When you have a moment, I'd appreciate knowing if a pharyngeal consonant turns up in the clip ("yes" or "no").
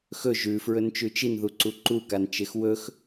no